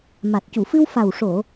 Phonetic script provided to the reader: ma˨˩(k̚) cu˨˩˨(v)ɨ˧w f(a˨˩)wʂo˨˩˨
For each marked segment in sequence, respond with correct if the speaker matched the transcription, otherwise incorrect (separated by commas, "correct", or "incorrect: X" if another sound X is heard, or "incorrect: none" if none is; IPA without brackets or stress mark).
incorrect: t̚, incorrect: f, correct